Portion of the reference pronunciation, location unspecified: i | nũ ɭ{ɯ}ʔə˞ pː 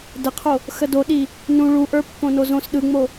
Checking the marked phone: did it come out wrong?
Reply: yes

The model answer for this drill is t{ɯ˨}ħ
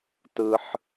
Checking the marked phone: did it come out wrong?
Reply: no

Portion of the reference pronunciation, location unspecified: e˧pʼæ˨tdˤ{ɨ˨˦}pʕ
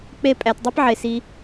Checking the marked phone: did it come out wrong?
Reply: yes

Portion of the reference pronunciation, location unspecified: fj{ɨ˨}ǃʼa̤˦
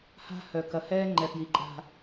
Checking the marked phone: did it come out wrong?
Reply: yes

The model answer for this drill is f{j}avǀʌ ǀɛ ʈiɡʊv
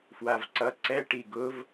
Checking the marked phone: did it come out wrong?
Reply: yes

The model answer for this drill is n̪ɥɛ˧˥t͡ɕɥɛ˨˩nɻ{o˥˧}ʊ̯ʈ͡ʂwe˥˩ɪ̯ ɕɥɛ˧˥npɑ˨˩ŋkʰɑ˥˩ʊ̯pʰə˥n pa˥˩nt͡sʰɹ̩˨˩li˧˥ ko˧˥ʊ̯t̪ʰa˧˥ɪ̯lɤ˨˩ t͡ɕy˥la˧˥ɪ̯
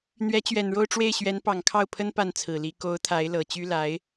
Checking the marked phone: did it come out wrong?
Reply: no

